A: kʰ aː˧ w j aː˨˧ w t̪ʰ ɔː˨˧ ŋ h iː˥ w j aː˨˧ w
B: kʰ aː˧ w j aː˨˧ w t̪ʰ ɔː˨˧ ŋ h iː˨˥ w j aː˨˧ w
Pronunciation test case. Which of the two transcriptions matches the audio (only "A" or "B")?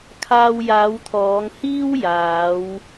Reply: A